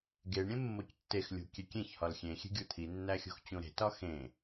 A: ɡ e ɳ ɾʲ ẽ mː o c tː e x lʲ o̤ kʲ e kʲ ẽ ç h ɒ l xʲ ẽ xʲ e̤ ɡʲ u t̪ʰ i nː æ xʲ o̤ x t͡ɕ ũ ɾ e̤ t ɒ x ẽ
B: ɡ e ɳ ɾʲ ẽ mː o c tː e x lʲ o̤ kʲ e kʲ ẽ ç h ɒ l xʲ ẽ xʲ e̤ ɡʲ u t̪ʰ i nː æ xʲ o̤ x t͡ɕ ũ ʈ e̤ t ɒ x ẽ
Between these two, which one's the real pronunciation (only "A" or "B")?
A